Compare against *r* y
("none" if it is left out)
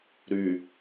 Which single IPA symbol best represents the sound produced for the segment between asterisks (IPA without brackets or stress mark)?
ɾ